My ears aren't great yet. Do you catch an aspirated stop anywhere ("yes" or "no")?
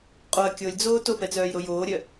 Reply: no